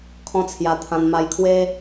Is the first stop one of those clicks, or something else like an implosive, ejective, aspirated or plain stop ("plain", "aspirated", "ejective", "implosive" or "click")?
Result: aspirated